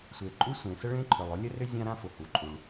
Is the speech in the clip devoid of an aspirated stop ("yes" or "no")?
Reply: no